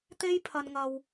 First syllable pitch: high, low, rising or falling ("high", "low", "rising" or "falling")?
high